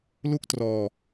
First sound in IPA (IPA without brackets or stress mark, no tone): l